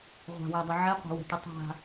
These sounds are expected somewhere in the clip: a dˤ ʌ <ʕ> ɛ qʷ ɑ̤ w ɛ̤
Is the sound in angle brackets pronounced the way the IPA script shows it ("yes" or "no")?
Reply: yes